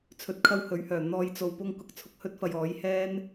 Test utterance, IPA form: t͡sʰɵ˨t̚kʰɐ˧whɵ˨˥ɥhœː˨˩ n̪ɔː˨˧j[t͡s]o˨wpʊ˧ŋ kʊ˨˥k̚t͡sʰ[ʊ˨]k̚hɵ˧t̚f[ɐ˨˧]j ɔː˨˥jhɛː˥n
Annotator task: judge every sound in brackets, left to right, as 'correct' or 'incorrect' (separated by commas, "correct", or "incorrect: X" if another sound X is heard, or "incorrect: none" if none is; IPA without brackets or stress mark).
correct, correct, incorrect: ɐ˨